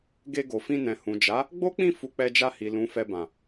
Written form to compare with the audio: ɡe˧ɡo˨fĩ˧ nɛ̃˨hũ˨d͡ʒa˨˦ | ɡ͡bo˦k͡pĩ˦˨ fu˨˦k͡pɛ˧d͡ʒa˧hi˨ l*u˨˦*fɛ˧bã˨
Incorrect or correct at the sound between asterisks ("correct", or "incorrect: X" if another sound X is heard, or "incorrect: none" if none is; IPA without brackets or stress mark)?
incorrect: ũ˨˦